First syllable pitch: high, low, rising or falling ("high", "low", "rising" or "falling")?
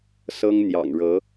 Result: high